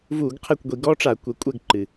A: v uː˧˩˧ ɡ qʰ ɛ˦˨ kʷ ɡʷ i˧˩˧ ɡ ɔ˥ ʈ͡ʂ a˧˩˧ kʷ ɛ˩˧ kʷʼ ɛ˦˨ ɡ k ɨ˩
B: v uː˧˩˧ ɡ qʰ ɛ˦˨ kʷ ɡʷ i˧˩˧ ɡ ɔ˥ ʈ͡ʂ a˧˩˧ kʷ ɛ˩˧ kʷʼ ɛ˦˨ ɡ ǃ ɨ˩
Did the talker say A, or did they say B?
B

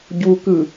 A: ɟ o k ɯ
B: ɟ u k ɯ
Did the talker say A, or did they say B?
B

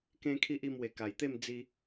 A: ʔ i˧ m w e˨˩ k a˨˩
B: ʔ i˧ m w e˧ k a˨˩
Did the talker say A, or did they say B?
A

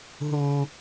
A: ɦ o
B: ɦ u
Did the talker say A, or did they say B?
B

